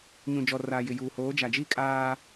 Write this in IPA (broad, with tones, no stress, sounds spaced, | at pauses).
ɲ ũ˨ d͡ʒ ɔ˨ r aː˨ j ɪ˨ j uː˨ h oː˨˦ d͡ʒ a˨ d͡ʒ i˦ kʼ aː˦